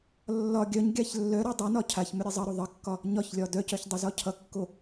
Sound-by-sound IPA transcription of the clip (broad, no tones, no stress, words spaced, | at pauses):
lːɒ ɡʲœɲɡʲaç lːœɾa dˤœnɒ cʰaçmʏ ɾʲezˤʌɾo ðˤʌkːɒ | ɲɒçlʲɒ dœcœç dˤʌzɒcʰʌkːo